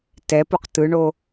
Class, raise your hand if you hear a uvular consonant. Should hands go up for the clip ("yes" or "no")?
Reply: yes